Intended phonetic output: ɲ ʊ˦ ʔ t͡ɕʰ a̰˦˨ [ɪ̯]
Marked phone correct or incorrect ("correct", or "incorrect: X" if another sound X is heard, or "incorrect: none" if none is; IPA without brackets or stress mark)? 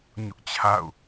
incorrect: ʊ̯